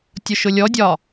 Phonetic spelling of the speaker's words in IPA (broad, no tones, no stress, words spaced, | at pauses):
tʲʊʃʊlʲɔdʲɒ